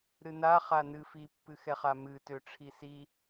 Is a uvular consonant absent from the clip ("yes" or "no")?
no